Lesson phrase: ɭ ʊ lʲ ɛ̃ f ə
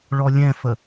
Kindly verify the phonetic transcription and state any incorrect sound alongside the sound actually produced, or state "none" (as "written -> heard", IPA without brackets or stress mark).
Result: ʊ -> ɔ